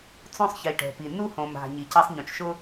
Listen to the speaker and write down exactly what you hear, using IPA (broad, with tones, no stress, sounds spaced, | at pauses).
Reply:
t͡s õ˦ sˤ ç i˨ ʈ ɛ̤˨ p i˨ n u˦ h õ˨ m a̤˨ ɲ i˨ c a˦ sˤ ɲ õ˨ t͡ʃ ʃ ʊ˦